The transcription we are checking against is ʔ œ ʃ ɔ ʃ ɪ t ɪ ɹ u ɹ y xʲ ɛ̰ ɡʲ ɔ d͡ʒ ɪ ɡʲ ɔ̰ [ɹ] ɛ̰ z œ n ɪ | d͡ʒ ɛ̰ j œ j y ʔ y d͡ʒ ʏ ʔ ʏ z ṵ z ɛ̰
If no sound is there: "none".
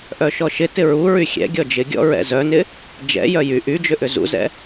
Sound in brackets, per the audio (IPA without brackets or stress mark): ɹ